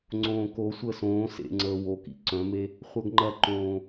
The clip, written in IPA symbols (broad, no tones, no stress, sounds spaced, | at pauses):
ŋ͡ǀ õː k o sʷ əː s õː s ḛ ŋ͡ǀ əː w o k ḭ ǀ œ̃ m e | χʷ œ ɡ ŋ͡ǃ ɐ ǃ õː